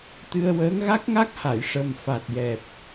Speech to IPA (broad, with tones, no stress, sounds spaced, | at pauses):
t̪ ɨ˧ ə̯ w əː˧˥ ŋ ɣ a˦˥ k̚ ŋ a˦˥ k̚ h a˨˩˨ j ʂ ə˨˩ m f a˨˩ t̚ j ɛ˨˩ p̚